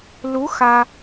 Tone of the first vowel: rising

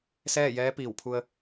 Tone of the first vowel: falling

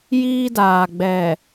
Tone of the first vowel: high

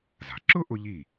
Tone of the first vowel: low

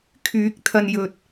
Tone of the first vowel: rising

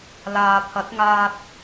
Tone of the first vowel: low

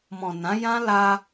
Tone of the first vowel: low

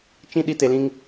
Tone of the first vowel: high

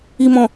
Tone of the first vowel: low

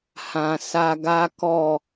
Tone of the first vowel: low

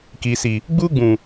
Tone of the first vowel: low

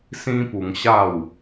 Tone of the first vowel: high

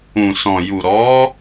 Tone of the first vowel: low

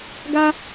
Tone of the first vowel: high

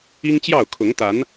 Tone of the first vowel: high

